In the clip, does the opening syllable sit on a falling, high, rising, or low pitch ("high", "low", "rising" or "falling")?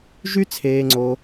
high